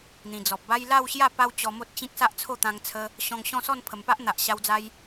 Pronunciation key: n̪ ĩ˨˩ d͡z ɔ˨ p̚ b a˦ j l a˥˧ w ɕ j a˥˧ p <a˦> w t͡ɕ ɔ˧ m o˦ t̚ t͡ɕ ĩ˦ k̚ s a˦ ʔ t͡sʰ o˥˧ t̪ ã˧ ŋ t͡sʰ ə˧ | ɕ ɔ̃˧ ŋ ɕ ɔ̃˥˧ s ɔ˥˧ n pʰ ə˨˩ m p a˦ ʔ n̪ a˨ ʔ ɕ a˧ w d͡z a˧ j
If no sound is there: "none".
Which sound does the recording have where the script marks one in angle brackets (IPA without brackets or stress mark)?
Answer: a˦